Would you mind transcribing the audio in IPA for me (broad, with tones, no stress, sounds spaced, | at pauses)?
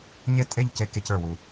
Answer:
ɲ e˥˧ tʼ e˥˧ ʎ c e˧˩˧ k e˧ c ə˞˨˩ w u˨˩